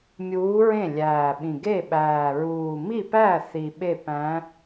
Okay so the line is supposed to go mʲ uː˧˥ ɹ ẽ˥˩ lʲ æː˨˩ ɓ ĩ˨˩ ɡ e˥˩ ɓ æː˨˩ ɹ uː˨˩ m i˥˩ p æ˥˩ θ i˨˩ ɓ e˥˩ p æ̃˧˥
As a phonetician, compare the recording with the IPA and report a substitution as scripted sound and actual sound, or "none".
none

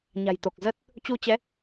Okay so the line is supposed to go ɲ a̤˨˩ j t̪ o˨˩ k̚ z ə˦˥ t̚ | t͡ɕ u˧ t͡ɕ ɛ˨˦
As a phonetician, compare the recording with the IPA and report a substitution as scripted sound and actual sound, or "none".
none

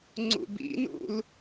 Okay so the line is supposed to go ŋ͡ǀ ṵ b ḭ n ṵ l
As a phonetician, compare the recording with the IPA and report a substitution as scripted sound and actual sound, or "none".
none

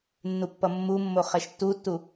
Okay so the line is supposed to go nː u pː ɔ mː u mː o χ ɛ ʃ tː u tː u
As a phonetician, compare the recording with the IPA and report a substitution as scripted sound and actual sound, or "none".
ɔ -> ʌ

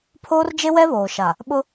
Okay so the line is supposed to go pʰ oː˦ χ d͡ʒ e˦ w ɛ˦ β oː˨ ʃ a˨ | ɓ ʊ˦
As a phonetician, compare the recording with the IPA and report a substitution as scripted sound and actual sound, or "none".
χ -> r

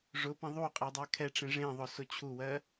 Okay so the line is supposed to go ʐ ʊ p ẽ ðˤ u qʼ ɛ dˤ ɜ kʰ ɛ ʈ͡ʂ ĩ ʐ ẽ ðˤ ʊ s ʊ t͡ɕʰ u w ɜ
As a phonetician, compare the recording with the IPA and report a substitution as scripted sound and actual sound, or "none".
ĩ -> ẽ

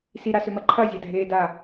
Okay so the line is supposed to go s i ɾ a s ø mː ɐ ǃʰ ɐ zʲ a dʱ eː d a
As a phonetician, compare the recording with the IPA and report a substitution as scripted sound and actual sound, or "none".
mː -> m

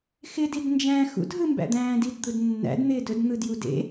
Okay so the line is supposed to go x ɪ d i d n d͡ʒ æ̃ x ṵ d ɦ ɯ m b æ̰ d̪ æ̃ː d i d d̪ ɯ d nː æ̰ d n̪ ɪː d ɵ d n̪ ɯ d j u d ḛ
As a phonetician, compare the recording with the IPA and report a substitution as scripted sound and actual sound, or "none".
none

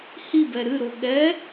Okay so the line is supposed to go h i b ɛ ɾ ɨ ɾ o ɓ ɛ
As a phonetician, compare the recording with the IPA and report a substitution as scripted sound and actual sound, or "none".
ɓ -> ɠ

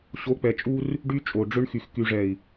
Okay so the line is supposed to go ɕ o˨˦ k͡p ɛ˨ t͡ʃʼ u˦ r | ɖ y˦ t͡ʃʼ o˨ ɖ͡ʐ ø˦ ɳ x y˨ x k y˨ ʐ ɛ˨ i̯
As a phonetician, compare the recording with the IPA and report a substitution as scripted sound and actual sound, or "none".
none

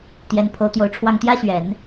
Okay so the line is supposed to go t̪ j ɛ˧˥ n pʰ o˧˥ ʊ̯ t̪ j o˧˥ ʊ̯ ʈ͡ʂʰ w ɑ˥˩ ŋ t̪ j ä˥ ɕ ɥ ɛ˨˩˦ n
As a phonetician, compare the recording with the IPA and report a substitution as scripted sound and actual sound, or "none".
none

